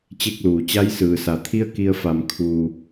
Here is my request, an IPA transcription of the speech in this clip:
t͡ɕe˥˨k̚luː˩ t͡ɕa˧˥jsɯː˩sa˩t̪ʰi˥˨ə̯ ki˧ə̯fa˩˧m kʰuː˩

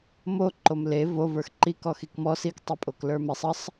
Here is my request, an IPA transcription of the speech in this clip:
mo ǃomle vo və˞xǃi kɔxikmɔ sik tˤepʼoklə˞mesˤ əsˤ

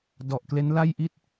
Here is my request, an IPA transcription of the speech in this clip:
dɔ˨˩ʔkle˦˥nla˥˩jʔi˥˩t̚

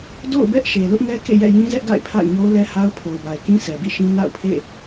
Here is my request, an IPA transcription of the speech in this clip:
do̰˦˨ʊ̯bɛ˦ʔ ʃe˨lʊ˦ʔŋɛ˦kḛ˦˨ jɛ̰˦˨ jĩ˦zɛ˦ʔɡa̰˦˨ɪ̯ pʰa̰˦˨ɪ̯ɲo˦ʊ̯lɛ˦ha˦ʊ̯ pʰo˨ʊ̯ba˨ɪ̯kĩ˦ sɛ˨bḭ˦˨ʃĩ˦ na̰˦˨ʊ̯pʰḛ˦˨

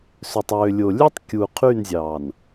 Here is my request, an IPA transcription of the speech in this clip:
sø˨tˤøː˨lʲo˨lʲø˦tˤ kʲu˨ qʰy˦˨nzʲɑː˨n

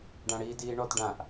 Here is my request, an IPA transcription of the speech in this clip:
ɖãɽiːdiːɳɔt ɖãʔ

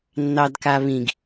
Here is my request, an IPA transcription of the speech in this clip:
nːɑdkaβĩɡ

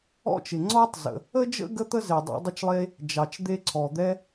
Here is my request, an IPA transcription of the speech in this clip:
ɔ̰˥t͡ʃɪ˩ ŋ͡ǀɔ˥tˤzə̰˩ | ə˥d͡ʒə̰˥ ɡə˥t̪ə˥ze˩ dˤɑ̰˥dˤɪ˥t͡ʃlˠe˥ | d͡ʒɑ˩t͡ʃd̪e˥ǀʰɔ˩ d̪ɛ˥

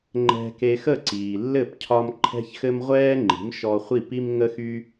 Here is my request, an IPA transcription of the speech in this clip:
ŋ͡ǃɛ̤˧ke˧xə˥˩ ǀiː˩lːɘ˥˩p cʰɒ˧m ǃʰɛ̤˥çxɘ˥m ʁʷɛː˥ŋ͡ǃi̤˩˥m ʃɔ˧χʷi˥˩pi˥m ŋə˥xy˥

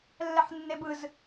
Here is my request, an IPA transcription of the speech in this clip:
lːɛħnːebɯz

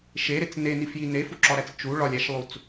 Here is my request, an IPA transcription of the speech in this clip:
ʃeɾet͡s nenifji nefuǁɒɾæt͡s t͡ʃu ɭɒlʲæʃlˠut͡s

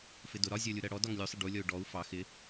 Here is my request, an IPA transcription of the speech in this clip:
fɪdʊ ɾɒzʲɔlʲu ɾɜɽɔ dɒŋlʲusˤɪ ɖulʲɔu̯ ɖɔu̯ fɑ xɪ

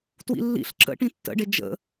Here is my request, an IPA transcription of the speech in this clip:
twḭlːḭɬ ǁə̰ʈĩ tːə̰ɖe d͡ʒə̰

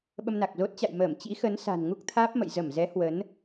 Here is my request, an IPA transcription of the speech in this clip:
ɓə˧mna˨˩k̚zo˦˥t̚t͡ɕa̰˧˨j məː˧˩mt͡ɕḭ˧˥xə˨˦n sa̤˨˩nŋu˦˥k̚t̪ʰaː˦˥p̚mə̰˧˨j zə˧˩mzɛ˨˦ hwə˨˦n

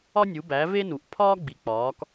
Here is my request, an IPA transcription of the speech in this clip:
ɒ˦nʲu˩˧bæ˩˧ ve˦nu˩ʔ pʰɒː˦ɡ͡bi˩k͡pɒː˩˧k

